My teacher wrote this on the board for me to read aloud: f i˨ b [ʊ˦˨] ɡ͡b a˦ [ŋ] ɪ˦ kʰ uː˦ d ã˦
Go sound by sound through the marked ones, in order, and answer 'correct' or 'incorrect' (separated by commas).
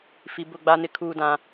correct, incorrect